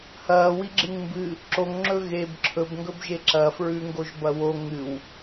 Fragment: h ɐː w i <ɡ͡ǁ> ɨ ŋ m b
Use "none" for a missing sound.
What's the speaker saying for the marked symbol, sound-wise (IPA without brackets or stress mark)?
ɡ͡ǁ